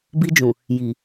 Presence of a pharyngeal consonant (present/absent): absent